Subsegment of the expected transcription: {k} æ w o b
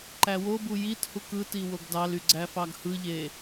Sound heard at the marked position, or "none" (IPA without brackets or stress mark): ǃ